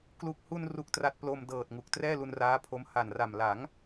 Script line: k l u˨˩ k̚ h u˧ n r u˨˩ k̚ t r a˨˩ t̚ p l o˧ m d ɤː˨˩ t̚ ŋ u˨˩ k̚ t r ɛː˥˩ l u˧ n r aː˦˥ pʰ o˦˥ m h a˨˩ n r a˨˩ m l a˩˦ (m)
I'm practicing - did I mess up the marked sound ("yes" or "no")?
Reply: yes